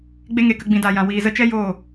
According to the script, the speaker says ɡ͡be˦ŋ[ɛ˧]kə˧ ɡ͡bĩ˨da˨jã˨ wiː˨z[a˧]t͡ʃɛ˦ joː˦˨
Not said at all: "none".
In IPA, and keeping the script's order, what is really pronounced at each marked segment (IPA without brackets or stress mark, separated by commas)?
e˧, ə˧